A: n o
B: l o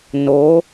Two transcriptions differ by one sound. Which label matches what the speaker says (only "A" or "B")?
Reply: A